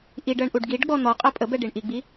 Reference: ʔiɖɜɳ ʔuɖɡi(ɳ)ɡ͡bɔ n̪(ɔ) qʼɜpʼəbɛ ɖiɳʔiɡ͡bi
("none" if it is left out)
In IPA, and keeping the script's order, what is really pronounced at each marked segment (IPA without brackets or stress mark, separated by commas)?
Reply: ɖ, ɔ